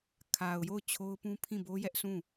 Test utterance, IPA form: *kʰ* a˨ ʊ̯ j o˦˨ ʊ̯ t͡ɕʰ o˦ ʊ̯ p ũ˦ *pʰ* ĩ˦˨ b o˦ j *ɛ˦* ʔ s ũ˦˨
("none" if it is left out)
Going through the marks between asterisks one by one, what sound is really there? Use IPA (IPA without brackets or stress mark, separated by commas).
kʰ, pʰ, ɛ˦